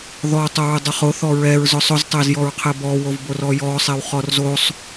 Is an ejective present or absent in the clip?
absent